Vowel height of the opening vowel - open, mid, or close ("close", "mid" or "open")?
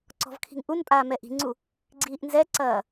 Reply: mid